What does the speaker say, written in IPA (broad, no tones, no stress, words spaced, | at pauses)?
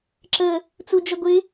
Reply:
ǁə | t͡sud͡ʒʌɡʷɪ